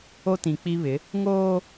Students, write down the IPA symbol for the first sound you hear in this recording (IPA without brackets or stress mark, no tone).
o